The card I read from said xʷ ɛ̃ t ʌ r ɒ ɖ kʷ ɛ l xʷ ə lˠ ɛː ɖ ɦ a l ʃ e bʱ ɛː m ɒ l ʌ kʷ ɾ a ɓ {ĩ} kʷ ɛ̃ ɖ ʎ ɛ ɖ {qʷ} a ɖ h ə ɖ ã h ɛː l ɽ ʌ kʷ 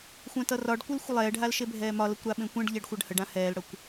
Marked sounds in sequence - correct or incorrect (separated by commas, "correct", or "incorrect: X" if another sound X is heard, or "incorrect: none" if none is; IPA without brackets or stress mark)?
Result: incorrect: ẽ, incorrect: xʷ